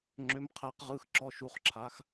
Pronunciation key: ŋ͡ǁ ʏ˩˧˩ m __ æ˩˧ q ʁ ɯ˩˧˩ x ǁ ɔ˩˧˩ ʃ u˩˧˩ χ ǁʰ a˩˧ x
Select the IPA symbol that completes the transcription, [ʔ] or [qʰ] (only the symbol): qʰ